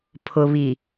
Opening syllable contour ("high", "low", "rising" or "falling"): low